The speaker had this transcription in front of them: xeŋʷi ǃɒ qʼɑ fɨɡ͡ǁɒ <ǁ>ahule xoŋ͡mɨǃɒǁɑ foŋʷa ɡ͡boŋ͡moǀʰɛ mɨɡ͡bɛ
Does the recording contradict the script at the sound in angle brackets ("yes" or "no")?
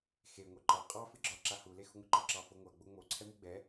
no